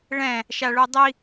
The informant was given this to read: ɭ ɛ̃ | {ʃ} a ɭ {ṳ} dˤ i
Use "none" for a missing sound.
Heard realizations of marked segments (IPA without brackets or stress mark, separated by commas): ʃ, u